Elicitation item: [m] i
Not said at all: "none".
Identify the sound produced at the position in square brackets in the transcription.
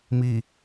m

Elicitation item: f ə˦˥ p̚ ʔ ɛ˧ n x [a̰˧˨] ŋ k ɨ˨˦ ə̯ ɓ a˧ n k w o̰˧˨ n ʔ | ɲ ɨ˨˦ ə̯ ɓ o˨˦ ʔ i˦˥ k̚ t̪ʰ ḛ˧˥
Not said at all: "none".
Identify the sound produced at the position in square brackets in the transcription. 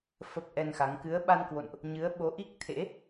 a˨˦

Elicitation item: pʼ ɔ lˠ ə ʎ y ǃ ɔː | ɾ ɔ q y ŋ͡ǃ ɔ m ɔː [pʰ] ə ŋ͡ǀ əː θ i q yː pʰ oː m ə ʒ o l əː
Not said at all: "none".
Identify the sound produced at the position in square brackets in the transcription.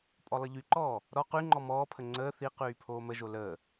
pʰ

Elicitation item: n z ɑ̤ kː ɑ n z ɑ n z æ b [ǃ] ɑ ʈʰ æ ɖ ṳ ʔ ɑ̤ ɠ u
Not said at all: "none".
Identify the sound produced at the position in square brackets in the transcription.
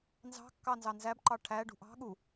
ǃ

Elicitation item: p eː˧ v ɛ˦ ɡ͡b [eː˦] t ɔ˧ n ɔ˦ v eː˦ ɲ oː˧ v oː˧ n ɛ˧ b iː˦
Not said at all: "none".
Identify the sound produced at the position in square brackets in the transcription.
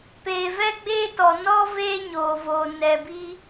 eː˦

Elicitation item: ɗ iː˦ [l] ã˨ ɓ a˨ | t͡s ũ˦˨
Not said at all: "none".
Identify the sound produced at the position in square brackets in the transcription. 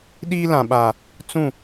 l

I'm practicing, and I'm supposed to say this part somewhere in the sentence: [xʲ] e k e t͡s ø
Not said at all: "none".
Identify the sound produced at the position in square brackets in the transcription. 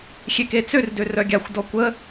xʲ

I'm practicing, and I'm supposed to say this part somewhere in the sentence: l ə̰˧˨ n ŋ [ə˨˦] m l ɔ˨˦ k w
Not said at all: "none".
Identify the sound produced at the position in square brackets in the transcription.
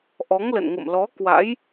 ə̰˧˨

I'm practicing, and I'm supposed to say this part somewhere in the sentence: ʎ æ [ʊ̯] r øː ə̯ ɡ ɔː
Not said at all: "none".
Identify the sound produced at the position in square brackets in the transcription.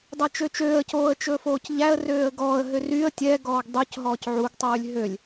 ə̯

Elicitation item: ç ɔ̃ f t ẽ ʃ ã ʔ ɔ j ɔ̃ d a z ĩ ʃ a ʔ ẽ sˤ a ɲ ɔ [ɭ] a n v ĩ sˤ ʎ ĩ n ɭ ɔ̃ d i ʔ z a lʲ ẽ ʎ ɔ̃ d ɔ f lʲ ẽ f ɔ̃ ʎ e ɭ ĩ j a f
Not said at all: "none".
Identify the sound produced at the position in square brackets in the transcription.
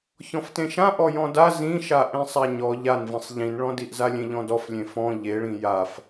ʎ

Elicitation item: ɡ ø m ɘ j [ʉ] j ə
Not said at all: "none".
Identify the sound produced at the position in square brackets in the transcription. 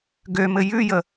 ʉ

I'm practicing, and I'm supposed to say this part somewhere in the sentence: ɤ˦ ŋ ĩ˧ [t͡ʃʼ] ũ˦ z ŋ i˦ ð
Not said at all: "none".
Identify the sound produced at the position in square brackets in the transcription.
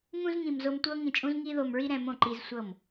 t͡ʃʼ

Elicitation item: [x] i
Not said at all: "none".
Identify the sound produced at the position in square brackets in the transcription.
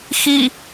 x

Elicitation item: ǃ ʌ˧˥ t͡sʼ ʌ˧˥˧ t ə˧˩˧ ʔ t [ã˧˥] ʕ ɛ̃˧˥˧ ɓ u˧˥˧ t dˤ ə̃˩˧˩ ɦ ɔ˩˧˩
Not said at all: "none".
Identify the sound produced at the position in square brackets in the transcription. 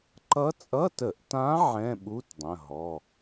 ã˧˥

